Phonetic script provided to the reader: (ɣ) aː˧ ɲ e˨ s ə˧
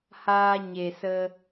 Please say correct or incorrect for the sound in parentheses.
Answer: incorrect: h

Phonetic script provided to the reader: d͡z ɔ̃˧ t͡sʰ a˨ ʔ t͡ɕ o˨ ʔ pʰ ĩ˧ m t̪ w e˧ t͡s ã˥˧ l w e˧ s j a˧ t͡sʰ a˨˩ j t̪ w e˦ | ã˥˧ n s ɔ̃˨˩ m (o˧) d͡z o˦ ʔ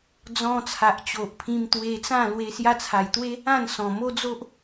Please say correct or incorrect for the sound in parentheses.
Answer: incorrect: o˦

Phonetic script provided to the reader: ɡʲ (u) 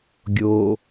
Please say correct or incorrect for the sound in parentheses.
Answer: incorrect: o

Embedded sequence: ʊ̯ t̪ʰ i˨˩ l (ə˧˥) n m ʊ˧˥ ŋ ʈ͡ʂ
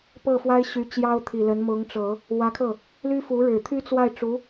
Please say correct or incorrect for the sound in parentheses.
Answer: correct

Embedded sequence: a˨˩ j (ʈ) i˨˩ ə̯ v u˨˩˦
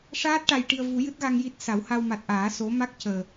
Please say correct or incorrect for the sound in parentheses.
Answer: correct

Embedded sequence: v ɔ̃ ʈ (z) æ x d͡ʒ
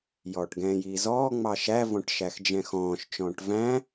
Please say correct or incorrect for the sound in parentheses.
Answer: incorrect: ʃ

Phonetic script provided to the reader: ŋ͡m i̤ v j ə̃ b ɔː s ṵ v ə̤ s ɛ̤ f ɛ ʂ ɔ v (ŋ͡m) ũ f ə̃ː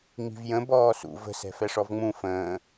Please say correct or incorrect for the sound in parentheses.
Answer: correct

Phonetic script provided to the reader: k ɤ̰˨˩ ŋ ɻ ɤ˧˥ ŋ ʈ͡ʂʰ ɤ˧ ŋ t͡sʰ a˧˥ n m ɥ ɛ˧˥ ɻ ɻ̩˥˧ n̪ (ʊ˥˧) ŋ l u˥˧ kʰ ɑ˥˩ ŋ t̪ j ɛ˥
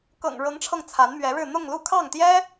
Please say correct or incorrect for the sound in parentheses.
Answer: correct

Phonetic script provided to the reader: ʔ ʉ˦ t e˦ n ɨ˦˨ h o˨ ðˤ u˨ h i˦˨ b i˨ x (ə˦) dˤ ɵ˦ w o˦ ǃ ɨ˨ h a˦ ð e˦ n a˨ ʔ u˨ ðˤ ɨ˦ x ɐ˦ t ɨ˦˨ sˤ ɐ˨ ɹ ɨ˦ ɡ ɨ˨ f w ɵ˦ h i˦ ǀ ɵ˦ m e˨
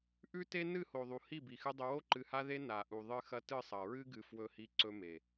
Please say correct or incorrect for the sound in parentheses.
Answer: incorrect: ɨ˦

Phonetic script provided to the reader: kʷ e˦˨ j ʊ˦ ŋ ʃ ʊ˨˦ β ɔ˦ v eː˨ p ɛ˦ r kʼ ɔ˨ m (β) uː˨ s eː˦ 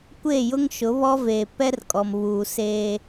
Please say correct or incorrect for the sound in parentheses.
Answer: correct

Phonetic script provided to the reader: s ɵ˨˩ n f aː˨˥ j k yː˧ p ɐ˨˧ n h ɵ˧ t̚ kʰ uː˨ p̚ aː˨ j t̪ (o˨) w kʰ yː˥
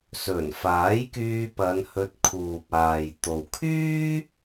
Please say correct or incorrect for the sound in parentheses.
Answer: correct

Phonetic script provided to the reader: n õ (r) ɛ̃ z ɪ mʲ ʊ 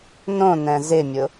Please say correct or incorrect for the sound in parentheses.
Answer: incorrect: n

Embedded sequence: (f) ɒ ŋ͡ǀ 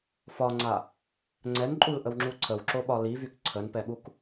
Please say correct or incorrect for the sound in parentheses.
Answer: correct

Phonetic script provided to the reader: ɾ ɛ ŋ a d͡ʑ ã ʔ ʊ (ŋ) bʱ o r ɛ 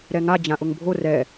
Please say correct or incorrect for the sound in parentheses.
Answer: correct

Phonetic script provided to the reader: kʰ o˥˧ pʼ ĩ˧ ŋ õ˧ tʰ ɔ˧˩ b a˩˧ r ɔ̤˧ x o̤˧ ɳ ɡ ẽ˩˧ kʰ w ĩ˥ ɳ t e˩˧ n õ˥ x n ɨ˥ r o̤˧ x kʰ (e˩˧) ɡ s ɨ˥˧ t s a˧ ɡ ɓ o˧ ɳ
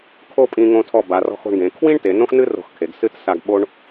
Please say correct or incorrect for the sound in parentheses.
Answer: correct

